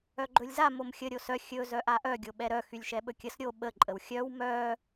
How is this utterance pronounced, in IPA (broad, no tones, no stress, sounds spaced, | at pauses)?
œ ɡ͡ǃ ɵ lʲ z a m o m xʲ ə ɾʲ o s œ xʲ ɵ z œ ʔ a ʔ œ ɡʲ o ɓ ɛ ɾ œ x y lʲ ʃ ɛ ɓ ɵ kʲ ə s ɾʲ o ɓ ə ǃʼ ə w xʲ œ w m œ